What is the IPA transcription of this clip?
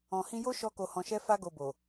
ɔ̃˨ h ĩ˧ j o˦ ʃ ɔ˧ k o˨ h ɔ̃˨ ʃ ɛ˧ f a˦ ɡ o˧ b o˨

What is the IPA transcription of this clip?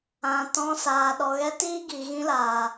ã˨ t ɔ̃˧ s aː˨ ɗ ɔ˨ ɣ ɛ˧ t iː˦ ɡ i˨ ɣ ĩ˧ l aː˨

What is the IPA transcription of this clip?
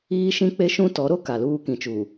iː˦ ʃ ĩ˦ k͡p e˦ ʃ ũ˦ t ɔ˨˦ ɾ o˦ k a˨ l uː˦ k ĩ˨ t͡ʃ u˨

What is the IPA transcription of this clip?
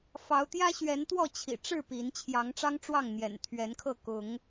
f ɑ˨˦ ʊ̯ t̪ j ä˦ ɕ ɥ ɛ˨˦ n t̪ w ɔ˥˨ t͡ɕʰ ḭ˨˩ ʈ͡ʂ ɻ̩˥˨ p i˨˦ n t͡ɕʰ j ɑ˨˦ ŋ ʈ͡ʂ ɑ˦ ŋ ʈ͡ʂ w ɑ˥˨ ŋ n̪ j ɛ̰˨˩ n t̪ʰ ɥ ɛ˨˦ n kʰ ɤ˥˨ k ʊ˨˦ ŋ

